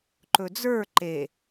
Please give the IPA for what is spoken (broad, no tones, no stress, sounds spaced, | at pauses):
ǃ ɵ d͡z ə˞ ǃ e